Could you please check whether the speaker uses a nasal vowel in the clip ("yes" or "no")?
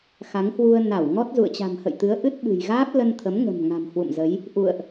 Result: no